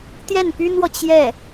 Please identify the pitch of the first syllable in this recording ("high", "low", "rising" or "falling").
falling